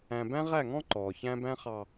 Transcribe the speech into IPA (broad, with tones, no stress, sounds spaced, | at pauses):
æ̃˨ b æ̃˦ ʁ æ˦˨ ŋ ɔ̃˦ ǃ ɔː˨ ç æ̃˦ b æ̃˦ χ ɑ˨